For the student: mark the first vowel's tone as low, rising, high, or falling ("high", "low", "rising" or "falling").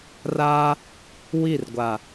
high